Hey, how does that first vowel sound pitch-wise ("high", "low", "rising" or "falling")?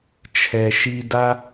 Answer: low